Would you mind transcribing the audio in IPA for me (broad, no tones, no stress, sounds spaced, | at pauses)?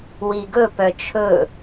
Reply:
w i ɡ ɵ p œ t͡ʃʰ ɵ